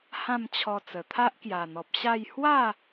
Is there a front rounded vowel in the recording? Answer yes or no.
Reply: no